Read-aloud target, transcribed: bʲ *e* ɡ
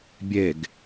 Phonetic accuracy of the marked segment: correct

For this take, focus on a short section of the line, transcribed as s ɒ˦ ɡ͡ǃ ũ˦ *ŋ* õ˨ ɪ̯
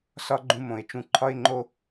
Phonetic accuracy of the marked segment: incorrect: m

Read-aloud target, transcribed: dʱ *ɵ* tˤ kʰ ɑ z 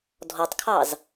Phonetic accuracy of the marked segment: incorrect: ɔ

